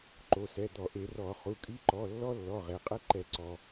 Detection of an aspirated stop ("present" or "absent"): absent